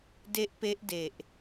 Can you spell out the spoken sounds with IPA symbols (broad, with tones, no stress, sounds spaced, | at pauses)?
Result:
d e˦˥ ʔ p e˦˥ ʔ d e˨˩ ʔ